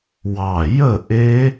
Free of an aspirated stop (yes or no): yes